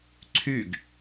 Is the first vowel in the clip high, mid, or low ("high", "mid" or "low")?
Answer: high